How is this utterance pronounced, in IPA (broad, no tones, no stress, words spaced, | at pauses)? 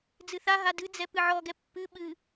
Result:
d͡zɨθaɦa dɨd͡zɛ pɨʕɔɡɛ pːɨ ɓɨ